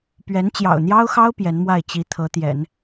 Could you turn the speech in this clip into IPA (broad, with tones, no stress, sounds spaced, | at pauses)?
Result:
p ɥ ɛ˧˥ n t͡ɕ j ɑ̰˨˩ ʊ̯ n̪ j ɑ˥ ʊ̯ x ɑ˥ ʊ̯ p j ɛ˧˥ n m w a˥˩ ɪ̯ t͡ɕ i˧˥ t̪ʰ ɤ˧˥ t̪ j ɛ̰˨˩˦ n